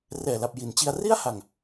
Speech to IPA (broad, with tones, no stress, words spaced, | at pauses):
rɛː˨˩la˨˩p̚ ji˩˦nt͡ɕi˧a̯ ri˥˩a̯ha˨˩ŋ